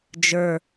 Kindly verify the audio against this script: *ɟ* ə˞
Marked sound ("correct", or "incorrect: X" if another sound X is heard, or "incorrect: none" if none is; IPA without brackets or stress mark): incorrect: d͡ʒ